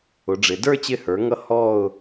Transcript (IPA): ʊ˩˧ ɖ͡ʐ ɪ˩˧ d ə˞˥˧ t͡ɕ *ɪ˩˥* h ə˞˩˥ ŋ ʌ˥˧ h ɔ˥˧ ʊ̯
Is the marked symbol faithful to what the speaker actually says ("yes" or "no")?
no